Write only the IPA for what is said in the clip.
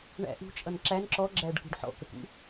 ɳæ̰ ʔṳt͡ʃʼʌn ǁæn ǁɔɡ͡ǁæɖkṳɖ ħɔ̰kəkṵ

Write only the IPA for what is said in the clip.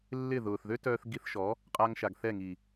lːɪ˦˨ðʊː˨θ ðø˦tœː˧θɡi˧θʃɔ˨˦ | qʼa˧ŋʃa˨ɡθɛ˦˨ ŋi˨

